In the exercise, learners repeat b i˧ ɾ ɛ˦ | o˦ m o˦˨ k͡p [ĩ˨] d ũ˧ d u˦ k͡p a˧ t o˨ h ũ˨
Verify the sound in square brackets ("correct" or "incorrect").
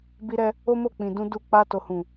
correct